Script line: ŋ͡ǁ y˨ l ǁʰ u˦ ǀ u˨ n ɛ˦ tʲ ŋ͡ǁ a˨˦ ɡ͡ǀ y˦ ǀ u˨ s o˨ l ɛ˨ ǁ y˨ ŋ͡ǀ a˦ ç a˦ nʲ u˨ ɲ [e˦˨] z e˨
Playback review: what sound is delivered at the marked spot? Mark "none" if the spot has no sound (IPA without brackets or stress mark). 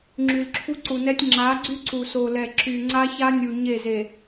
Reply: e˦˨